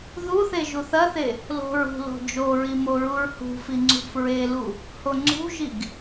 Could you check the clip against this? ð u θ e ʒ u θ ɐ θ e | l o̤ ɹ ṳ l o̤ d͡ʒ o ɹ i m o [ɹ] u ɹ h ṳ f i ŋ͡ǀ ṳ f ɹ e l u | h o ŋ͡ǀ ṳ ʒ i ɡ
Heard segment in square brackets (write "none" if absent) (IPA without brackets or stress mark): ɹ